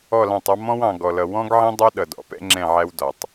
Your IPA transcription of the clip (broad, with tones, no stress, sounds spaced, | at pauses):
ɔ˦˨ l ɑ̃˦˨ tˤ ɑ˦ m ɔ̃˦ w ɑ̃˨ ɡ ɔ˨ l ʌ˨ w ɔ̃˦ ɡ ʕ ĩ˦ dˤ ɑ˦ ɗ ʌ˨ d ɔ̰˨ p ɛ̰˦ ŋ͡ǁ ɛ̃˦˨ ʕ æ˦ w d ɒ˨ tˤ